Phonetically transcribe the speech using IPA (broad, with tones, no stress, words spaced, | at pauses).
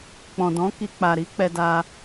k͡pɔ̃˨dɔ̃˨˦ki˧k͡pa˨ ɾi˨˦ k͡pɛ˧da˧